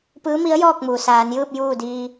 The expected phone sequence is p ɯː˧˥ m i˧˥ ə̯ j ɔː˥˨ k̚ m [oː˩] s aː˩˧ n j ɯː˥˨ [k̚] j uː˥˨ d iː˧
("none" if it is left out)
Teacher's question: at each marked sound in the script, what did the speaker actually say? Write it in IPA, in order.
uː˩, p̚

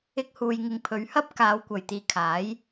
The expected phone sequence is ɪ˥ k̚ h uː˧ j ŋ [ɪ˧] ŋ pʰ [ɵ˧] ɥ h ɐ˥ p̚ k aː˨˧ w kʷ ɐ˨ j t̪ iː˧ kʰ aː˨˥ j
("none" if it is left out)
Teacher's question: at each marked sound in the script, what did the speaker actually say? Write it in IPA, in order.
ɪ˧, ɵ˨˧

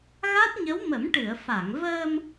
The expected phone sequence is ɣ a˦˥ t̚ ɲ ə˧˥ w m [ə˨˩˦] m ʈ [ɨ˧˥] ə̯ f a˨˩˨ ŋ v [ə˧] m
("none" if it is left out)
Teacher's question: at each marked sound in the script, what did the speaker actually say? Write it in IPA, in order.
ə˨˩˦, ɨ˨˩˨, əː˧

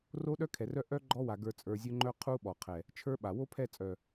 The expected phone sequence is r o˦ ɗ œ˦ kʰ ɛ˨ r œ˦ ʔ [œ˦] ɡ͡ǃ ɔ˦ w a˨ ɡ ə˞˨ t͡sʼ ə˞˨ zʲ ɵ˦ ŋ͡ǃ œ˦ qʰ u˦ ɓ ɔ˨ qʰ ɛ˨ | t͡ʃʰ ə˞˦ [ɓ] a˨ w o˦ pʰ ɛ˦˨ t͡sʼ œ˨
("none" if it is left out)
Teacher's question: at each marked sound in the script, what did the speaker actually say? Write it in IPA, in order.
œ˦, ɓ

